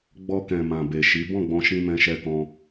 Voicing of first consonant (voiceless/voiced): voiced